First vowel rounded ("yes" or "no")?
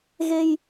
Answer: no